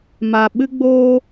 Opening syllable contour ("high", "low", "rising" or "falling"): low